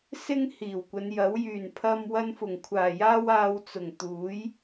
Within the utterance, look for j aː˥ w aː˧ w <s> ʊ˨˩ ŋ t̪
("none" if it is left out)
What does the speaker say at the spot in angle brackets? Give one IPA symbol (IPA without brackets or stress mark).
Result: t͡s